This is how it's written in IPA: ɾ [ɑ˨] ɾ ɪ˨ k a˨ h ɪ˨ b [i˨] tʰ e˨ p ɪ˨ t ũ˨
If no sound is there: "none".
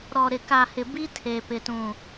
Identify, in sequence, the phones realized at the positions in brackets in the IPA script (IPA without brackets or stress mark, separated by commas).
ɔ˨, i˦